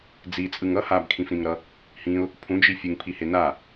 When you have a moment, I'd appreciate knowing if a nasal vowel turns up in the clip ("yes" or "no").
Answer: yes